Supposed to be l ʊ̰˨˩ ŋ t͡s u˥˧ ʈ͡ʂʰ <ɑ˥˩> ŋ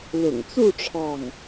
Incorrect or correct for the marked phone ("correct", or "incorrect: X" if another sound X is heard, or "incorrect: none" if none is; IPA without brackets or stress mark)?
correct